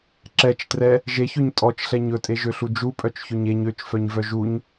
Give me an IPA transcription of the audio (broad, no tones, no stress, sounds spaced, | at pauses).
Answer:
ǁ ɛ t͡ʃ t r ɛ | ʒ e ç ø ɲ tʼ ɔ t͡ʃ ɬ ɛ ɲ ɵ tʼ e ʒ ø ɬ u d͡ʒ u pʼ œ t͡ʃ ç ø ɲ e ɲ ø t͡ʃ f œ ɲ v œ ʒ u ɲ